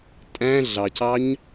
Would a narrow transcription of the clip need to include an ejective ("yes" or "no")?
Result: yes